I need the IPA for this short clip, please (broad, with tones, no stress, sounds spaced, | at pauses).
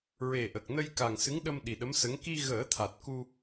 ɹ e˨˩ ʔ ə˨˩ k̚ n ə˧ j k a˨˩ ŋ s ɨ˧˥ ŋ ɗ ə˧ m ɗ i˨˩ ɗ ə˧˥ m s ə˧˥ ŋ k i˧ ɣ əː˨˩˦ t̪ʰ a˨˩ t̚ k u˧